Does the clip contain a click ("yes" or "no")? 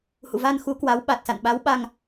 no